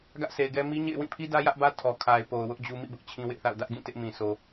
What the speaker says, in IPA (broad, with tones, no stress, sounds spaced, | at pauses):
ɡ ä˦ ʔ s e˨ ɪ̯ ɡ ɛ˦ m i˦ ɲ ḛ˦˨ ɪ̯ w ĩ˦˨ pʰ i˦ d ä˦ j ä˦ ʔ b ä˦ tʰ ɔ˨ kʰ a˨ ɪ̯ p o˨ ʊ̯ w ʊ˦ ʔ d͡ʑ u˦ m ḭ˦˨ b ʊ˦ ʔ t͡ɕʰ ĩ˦ w ɪ˦ ʔ θ a̰˦˨ ʊ̯ d ä˦ ʔ ɡ ĩ˦˨ t ɪ˦ ʔ m ĩ˨ s o˨